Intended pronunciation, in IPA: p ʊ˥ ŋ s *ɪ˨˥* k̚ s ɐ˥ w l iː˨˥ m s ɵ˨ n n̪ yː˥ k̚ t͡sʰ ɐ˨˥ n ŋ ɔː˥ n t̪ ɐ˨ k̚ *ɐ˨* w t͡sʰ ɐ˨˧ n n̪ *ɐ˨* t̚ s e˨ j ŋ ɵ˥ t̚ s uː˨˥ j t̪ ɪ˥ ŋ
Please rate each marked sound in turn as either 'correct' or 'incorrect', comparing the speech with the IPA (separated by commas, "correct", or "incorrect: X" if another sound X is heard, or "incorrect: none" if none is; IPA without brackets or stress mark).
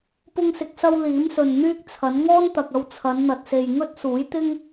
incorrect: ɪ˧, incorrect: ɐ˧, correct